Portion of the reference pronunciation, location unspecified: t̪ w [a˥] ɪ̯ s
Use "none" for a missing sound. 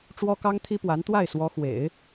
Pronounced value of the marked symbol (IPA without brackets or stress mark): a˥˩